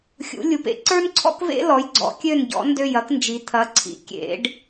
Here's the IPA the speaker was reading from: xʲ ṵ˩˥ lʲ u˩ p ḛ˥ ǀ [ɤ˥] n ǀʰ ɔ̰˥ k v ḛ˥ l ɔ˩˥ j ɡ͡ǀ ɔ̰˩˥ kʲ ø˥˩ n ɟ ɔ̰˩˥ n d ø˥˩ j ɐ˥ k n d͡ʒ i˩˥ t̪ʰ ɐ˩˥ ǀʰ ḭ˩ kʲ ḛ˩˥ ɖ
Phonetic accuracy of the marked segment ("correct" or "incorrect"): incorrect